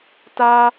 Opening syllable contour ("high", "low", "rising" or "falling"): high